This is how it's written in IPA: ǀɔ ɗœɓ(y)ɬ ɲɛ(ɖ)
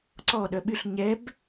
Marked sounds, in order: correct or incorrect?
correct, incorrect: b

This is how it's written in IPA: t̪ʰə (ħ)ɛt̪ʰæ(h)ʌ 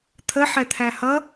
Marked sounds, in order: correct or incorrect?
correct, correct

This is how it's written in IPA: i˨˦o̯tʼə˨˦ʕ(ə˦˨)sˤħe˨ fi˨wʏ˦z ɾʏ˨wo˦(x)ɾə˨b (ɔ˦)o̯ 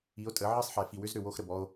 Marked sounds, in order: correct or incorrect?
incorrect: ə˦, correct, correct

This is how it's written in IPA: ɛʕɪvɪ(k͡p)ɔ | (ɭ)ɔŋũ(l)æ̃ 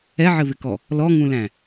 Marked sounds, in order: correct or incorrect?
incorrect: k, incorrect: l, correct

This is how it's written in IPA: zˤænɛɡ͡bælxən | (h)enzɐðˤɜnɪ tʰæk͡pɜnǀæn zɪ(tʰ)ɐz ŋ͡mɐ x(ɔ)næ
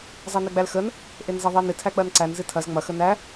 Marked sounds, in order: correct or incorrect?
incorrect: ʔ, correct, incorrect: ə

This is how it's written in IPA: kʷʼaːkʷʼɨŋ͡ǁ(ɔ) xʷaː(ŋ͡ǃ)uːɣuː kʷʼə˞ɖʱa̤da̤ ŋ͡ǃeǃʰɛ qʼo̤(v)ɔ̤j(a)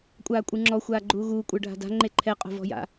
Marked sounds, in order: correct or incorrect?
correct, incorrect: ɡ͡ǃ, correct, incorrect: a̰

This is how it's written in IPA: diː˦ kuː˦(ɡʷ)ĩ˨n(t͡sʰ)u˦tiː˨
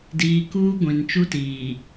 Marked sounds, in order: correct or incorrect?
correct, incorrect: t͡ʃ

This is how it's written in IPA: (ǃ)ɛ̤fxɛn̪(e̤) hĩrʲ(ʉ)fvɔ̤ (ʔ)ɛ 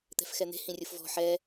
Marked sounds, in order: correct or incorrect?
incorrect: t̪, correct, incorrect: u, incorrect: ħ

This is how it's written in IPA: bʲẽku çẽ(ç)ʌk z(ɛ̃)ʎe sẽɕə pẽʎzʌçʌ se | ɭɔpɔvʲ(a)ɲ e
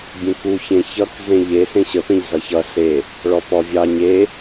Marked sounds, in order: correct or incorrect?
correct, incorrect: ẽ, incorrect: ɑ

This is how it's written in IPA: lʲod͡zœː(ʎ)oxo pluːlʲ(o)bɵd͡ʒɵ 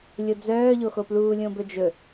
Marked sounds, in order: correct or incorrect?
correct, incorrect: õ

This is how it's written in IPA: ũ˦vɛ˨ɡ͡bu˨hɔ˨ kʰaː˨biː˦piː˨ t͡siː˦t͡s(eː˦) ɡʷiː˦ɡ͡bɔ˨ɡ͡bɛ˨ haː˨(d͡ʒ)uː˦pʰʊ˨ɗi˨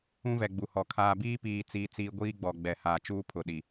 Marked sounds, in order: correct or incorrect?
incorrect: iː˦, incorrect: t͡ʃ

